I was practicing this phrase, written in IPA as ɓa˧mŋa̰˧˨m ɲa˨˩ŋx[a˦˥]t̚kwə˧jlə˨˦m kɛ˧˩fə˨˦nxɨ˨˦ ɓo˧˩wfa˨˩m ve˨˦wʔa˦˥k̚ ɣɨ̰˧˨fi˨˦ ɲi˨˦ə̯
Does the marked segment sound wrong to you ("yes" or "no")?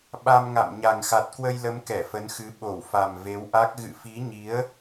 yes